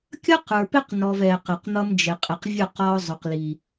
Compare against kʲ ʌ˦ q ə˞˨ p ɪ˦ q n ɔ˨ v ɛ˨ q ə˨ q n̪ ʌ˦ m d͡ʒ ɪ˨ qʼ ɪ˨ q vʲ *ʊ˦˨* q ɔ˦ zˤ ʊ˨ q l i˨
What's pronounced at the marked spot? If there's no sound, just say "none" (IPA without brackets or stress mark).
ʊ˦˨